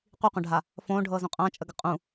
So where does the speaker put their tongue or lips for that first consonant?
uvula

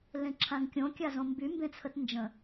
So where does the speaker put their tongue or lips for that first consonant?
tongue tip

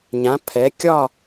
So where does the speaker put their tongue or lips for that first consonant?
palate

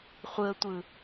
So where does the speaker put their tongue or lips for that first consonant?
uvula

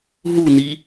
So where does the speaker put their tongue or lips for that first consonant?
throat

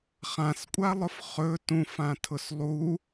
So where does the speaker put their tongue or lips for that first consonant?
uvula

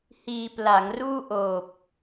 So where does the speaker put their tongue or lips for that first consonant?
throat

